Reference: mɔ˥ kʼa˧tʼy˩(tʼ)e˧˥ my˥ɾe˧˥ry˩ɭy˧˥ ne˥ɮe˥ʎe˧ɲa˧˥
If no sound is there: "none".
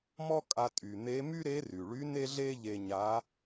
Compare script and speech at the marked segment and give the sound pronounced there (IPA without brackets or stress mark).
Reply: n̪